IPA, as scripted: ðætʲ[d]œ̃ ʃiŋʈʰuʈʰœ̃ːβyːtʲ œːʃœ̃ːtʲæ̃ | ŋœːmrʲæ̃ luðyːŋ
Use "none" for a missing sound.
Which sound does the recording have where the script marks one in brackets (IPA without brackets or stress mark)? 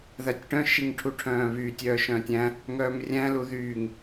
ʈ